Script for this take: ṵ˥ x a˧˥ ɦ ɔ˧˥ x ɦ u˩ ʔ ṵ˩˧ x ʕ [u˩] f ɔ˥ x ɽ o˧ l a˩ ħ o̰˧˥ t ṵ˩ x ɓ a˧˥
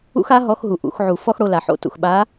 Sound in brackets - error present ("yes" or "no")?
no